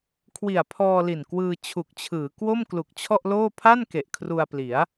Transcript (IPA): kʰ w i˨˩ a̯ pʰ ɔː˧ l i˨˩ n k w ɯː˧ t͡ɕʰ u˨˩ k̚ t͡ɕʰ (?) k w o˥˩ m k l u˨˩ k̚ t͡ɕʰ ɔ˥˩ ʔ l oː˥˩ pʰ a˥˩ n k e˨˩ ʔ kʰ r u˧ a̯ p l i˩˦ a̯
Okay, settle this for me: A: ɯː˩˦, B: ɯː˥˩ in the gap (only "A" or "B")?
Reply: A